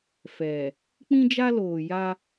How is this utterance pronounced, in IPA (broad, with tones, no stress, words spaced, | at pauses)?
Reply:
fɛ˨ | k͡pĩ˦d͡ʒa˦loː˨ja˦